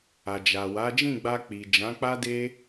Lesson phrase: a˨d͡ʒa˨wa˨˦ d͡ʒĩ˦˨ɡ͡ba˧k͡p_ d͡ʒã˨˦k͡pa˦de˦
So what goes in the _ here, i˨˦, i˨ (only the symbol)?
i˨